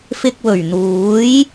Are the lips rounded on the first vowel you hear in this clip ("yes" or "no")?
no